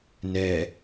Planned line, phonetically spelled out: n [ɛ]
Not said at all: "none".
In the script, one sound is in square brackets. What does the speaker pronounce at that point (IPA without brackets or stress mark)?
ɛ